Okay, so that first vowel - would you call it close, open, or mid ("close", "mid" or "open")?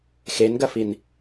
mid